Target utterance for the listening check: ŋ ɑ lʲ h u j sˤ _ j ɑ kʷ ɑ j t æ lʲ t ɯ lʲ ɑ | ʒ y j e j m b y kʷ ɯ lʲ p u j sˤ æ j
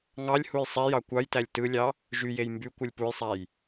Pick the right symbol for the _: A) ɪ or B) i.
B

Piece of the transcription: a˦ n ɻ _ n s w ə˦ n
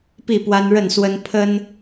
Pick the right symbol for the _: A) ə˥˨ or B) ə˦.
A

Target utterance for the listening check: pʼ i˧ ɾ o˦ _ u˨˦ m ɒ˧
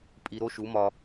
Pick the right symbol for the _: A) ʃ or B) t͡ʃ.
A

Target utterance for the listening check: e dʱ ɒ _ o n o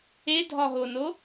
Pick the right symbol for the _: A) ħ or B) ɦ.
B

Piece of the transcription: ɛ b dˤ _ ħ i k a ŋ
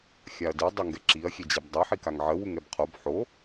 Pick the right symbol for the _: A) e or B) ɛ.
B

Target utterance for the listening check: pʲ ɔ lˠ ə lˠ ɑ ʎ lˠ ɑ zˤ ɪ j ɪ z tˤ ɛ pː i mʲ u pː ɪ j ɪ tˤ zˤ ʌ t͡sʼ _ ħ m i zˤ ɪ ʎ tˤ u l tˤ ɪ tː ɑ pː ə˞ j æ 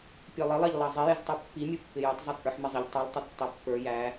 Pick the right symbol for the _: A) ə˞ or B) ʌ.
A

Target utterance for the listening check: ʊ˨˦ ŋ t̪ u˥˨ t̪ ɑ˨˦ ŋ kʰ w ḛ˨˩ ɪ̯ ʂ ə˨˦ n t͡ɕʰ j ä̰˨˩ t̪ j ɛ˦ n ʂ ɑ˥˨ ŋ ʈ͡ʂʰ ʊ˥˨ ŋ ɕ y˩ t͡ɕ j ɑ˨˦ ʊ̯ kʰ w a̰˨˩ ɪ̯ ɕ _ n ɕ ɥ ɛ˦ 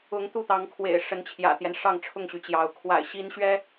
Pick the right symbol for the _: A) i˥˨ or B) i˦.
B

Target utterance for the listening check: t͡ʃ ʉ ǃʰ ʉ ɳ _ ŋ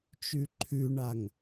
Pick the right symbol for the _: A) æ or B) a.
B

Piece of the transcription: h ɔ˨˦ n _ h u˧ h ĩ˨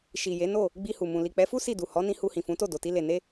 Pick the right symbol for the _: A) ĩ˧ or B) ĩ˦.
A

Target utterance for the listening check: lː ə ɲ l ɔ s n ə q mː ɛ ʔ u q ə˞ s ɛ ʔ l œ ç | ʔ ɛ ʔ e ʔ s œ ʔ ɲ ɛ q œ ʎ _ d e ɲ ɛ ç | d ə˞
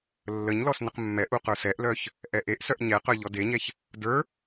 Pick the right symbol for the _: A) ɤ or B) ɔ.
B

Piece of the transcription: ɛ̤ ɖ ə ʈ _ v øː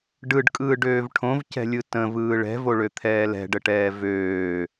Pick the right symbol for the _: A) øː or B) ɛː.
B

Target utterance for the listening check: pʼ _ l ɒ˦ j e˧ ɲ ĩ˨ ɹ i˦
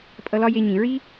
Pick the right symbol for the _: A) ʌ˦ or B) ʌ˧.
B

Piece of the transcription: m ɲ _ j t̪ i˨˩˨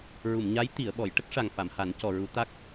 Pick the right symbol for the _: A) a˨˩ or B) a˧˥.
B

